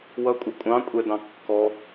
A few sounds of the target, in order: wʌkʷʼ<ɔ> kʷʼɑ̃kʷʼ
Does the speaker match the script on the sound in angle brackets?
no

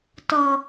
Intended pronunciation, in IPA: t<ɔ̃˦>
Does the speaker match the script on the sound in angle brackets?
no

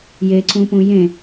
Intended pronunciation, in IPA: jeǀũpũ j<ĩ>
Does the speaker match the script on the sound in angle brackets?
no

